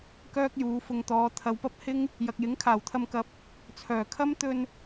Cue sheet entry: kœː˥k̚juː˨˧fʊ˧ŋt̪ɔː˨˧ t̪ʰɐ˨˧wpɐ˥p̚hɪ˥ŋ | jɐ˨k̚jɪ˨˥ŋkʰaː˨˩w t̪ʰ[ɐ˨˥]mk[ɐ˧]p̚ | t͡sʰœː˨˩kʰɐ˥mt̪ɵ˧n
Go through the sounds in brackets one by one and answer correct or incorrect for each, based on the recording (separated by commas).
incorrect, incorrect